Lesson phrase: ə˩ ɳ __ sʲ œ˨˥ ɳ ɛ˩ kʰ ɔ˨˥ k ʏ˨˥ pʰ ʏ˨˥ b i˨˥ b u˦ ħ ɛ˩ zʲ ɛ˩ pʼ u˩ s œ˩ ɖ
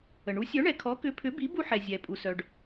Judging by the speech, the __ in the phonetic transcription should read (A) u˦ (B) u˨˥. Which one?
B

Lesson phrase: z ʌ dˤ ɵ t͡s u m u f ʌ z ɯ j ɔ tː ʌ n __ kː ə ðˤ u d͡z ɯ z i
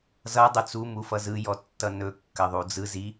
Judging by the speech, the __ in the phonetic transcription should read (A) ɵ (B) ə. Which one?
A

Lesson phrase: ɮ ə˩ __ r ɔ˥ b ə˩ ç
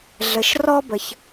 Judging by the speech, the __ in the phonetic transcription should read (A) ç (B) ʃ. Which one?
B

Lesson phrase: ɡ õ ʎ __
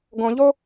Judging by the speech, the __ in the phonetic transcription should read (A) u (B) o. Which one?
B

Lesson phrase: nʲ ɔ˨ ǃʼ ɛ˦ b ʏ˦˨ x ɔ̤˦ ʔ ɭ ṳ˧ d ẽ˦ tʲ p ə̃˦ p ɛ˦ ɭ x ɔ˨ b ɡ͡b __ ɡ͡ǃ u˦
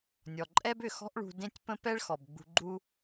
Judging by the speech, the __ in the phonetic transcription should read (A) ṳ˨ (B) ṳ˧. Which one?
B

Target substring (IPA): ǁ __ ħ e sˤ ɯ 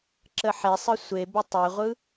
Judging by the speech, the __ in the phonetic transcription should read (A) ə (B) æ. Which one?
A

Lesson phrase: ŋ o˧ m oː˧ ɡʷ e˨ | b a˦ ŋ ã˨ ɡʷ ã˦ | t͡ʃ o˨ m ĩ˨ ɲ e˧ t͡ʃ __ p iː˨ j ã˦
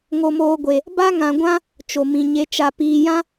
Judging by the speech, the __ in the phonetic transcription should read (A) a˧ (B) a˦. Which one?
A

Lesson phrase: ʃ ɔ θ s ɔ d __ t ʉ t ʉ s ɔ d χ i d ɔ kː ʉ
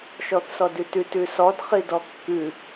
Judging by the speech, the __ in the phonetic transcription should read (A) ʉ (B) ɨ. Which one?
A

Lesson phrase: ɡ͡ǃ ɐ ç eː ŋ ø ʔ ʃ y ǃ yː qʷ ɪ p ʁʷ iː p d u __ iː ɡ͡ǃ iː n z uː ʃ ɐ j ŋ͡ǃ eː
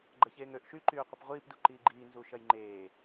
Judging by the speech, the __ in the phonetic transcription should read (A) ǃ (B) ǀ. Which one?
A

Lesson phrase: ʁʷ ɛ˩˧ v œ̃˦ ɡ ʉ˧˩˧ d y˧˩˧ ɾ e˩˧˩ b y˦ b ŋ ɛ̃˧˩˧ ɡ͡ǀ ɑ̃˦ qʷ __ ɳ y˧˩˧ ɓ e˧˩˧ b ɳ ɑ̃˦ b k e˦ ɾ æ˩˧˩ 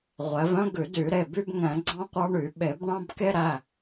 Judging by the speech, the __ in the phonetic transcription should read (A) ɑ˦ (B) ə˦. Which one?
A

